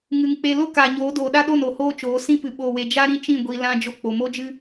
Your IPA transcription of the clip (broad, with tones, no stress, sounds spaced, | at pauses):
ŋ ɨ˨ ŋ k͡p e˧ l o˦ k aː˨ ɲ oː˨˦ d oː˨ ɗ a˦ ɗ o˦˨ n o˨ h oː˦ t͡ʃ oː˨˦ s ĩ˦ p ɨ˨ ɓ oː˨ w e˨ d͡ʒ a˦ ɾ ĩ˦ t͡ʃ ĩ˦˨ ɡʷ i˧ l ã˦ d͡ʒ o˧ k͡p o˨ m o˦ d͡ʒ ɨ˦